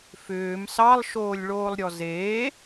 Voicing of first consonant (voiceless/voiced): voiceless